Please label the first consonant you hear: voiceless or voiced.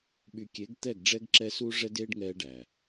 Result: voiced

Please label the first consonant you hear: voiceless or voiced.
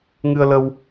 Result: voiced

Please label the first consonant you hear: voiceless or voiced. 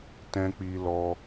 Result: voiceless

